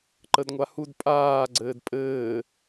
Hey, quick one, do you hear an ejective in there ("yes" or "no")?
yes